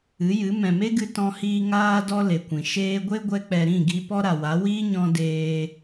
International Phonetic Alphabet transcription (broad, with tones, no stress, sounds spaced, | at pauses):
ɨ˨˦ j ɨ˨˦ m ɛ̃˨ m e˦ ɡ ɨ˧ t ɔ̃˧ h iː˧ ŋ aː˧ d ɔ˧ l e˨ kʷ ĩ˨ ʃ eː˧ ɡʷ e˦ ɡʷ ɛ˧ k͡p ɛ˨ ɾ ĩ˦˨ ɡ i˧ p ɔ˦ ɾ a˨ w a˨˦ w iː˦ ɲ ɔ̃˧ d eː˧